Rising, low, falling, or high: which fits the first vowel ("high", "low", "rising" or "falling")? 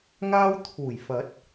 high